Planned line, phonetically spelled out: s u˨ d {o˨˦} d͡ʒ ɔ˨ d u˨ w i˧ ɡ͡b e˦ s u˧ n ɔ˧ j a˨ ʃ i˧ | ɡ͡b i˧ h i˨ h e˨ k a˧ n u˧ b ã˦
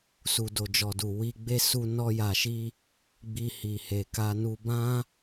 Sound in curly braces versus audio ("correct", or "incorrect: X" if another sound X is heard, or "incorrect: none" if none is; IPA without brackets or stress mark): incorrect: o˨